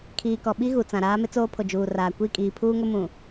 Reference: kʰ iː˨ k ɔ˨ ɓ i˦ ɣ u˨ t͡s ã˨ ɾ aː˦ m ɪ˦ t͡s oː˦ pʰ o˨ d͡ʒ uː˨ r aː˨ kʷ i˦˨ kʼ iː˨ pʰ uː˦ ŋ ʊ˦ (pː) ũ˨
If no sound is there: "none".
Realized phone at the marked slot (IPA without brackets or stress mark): m